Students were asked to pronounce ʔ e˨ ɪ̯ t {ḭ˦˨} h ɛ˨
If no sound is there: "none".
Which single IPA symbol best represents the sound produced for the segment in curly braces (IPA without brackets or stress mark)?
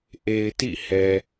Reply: ḭ˦˨